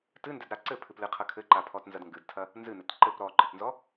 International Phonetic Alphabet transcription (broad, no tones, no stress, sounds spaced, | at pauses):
t ɨ n d ɛ d ɾ a ǀ ɘ pʰ ɨ p l ɨ qʰ ɐ kʰ ɘ ǃ a pʰ ɔ t n z ɐ d ŋ ɡ ɨ d tʰ ɐ | n z ɨ n ɘ t ǃ ɘ p ɾ ɔ ǃ ɨ t n z ɔ